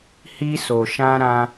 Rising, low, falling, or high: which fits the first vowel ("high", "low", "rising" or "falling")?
high